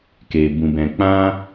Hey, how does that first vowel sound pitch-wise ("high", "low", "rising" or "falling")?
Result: low